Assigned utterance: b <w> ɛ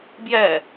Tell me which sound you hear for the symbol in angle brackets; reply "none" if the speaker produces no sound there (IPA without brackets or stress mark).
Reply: j